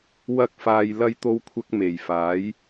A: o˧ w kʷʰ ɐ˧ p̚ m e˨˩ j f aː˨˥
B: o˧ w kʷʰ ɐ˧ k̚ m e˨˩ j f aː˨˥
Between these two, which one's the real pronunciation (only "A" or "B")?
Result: B